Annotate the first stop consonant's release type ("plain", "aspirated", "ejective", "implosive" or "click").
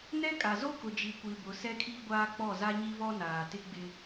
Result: ejective